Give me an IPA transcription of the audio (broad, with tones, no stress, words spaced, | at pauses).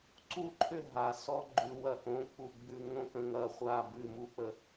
ǀu˦˨ǃʰʏ˦˨ ɦa˨sɔ˦ ɡ͡ǃʉ˨wɐ˨ʔõ˨˦k͡pu˨ ɡ͡bʉ˨ŋõ˦kə̃˨ŋɐ˨ χʷa˦˨bʉ˦˨ mu˦k͡pə˨